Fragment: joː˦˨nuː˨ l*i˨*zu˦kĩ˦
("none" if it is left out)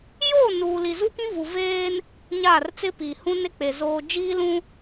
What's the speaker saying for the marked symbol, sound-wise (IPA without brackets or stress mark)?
i˨